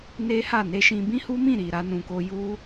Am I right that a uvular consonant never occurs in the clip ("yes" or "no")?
yes